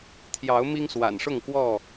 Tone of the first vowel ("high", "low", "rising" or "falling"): rising